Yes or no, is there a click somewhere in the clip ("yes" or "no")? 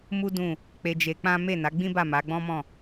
no